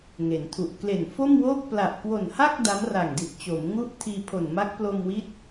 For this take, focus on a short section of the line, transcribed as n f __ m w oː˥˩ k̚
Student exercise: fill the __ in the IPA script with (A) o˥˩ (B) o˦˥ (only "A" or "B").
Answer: A